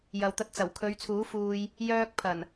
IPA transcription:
jɐ˨wt̪ɐ˧t̚t͡sɐ˨˩wkʰɵ˨˧ɥ t͡sʰuː˨˥fuː˨j | jœː˧k̚ pʰɐ˨˩n

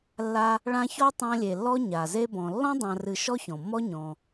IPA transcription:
lːa˥ | ɭã˦çɔ˥ tˤã˦lʲe˨lːɔ˥ ɲa˩ze˥bɔ̃˨ lːɔ̃˥dˤã˨rɨ˨ ʃɔ˥çɔ̃˩mːɔ˥ ɲɔ̃˩

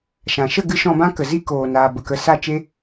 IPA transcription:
ʃã˨ ʃə˦˨ɡɨ˧ ʃɔ̃˧bã˦ kə˨zi˦ koː˨naː˨ bə˨kə˨sa˦˨ t͡ʃe˦

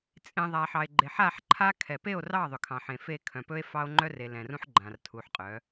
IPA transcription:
t͡sʼẽ˨ ðˤa˨ħɑ˨e̯ ɡ͡ǃe˨ħa˦˨ħ ǃʰa˦kʰɛ˨ pe˦˨o̯rɑ˦˨ ðˤʏ˨kʰɑ̃˨ħẽ˨ fe˦˨ kʰœ̃˨pɵ˦e̯ fɑ˦o̯ŋ͡ǃœ˦re˨ lɛ̃˨rũ˦ħɡ͡ǃã˨r tʰu˨ħqʼœ˨˦

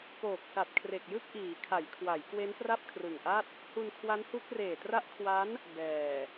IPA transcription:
poː˨˩k̚sa˨˩t̚ kʰre˨˩k̚jɯ˥˩k̚ʔiː˩˦ kʰa˩˦jkʰwa˩˦j kwe˦˥npra˥˩p̚kʰrɯ˨˩ŋʔa˥˩t̚ | hu˧nkʰwa˦˥nhu˦˥k̚ reː˨˩tra˦˥ʔkʰwa˦˥n | bɛː˨˩

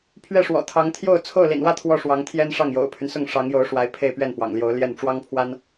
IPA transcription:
pʰɥɛ˥˩ʂwɔ̰˨˩t̪ʰɑ˧˥ŋ t̪ʰjo˥˧ʊ̯ t͡sʰo˥˩ʊ̯lḭ˨˩nwä˥˧ t̪ʰwɔ˥˩ʂwɑ˧˥ŋt̪ʰjɛ˥n ʂɑ˥˩ŋjo̰˨˩ʊ̯pʰy˦nsʊ˥˩ŋ ʂɑ˧˥ŋjo˧˥ʊ̯ʂwa˧˥ɪ̯ pʰe˥˧ɪ̯pɥɛ˥˩npwɑ̰˨˩ŋljo˧˥ʊ̯ ljɛ˥˩n ʈ͡ʂwɑ˥ŋpʰwa˥n

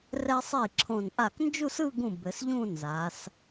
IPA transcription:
rɛ˧sˤi˧˩ ǁʰõ˧˩n ʔa˧˩knd͡ʒu˥˧sɯ˥˧ɡũ˧˩ bɘ˩˧sʎũ˥˧ nza˩˧s

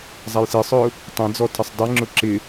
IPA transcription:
zˤajsɪːsˤʊː | tˤẽd͡zɔ tʰɪsˤdˤeŋ͡ǁʊ ǁɪ

